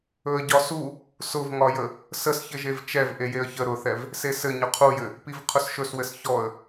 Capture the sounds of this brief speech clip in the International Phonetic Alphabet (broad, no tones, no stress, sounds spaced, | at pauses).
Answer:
ɵ ə̯ ɟ ɒ s u | s ʊ v ŋ ɒ j ə | s ə s ç ɘ ʒ e v t͡ʃ ɛ v ʔ e j e ə̯ ç ə ɾ ʊ θ ɛ v | s e s ɘ ɲ ɵ qʰ u j ɘ | p i v qʰ ʊ s ʃ ɵ s w ɘ s ç ɔ ə̯